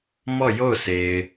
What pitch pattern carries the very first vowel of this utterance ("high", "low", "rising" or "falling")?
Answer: falling